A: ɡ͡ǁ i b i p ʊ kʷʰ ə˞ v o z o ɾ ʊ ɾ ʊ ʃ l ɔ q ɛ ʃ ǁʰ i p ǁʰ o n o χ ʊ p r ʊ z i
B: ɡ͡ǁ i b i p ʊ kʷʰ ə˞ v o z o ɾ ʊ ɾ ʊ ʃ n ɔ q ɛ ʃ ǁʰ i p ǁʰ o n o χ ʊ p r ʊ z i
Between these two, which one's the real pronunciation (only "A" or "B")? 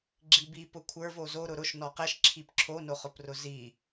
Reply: B